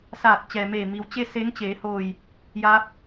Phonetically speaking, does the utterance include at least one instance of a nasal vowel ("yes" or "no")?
no